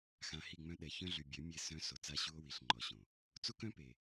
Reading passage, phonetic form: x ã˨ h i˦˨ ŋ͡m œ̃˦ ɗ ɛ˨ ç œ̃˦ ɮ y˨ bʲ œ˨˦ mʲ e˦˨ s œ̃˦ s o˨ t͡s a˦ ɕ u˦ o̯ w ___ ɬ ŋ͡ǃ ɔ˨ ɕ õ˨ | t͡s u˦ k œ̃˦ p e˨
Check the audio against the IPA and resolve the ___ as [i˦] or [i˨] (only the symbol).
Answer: i˨